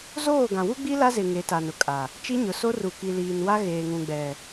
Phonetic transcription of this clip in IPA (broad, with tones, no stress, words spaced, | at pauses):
zoː˦˨ɡã˨wu˦ɡ͡bi˦ la˦zɪ˨ ŋe˨˦ta˨nʊ˨kʼa˨ | t͡ʃi˦ɲʊ˨so˦ ru˨ki˨ liː˨nwa˦ ɣeː˨ŋũ˨ɡ͡bɛ˨